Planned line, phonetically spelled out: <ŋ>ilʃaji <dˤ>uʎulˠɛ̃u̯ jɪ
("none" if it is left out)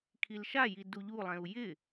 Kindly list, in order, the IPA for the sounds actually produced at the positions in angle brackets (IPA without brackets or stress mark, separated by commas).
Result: kʰ, d